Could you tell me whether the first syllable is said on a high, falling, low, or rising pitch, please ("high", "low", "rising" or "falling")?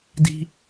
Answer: high